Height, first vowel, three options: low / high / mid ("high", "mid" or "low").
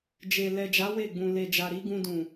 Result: mid